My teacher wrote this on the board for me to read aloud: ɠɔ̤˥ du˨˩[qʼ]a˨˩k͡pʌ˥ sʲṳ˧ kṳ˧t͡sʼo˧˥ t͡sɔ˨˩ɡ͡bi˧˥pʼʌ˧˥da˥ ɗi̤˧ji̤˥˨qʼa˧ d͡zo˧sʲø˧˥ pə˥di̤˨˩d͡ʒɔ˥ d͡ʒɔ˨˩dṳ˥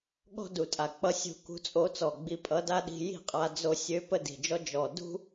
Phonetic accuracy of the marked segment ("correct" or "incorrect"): incorrect